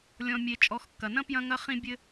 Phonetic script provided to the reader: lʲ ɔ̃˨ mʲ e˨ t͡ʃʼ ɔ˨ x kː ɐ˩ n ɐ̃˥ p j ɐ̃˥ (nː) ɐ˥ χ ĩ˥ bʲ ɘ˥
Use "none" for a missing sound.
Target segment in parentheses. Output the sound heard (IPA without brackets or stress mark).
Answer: ŋ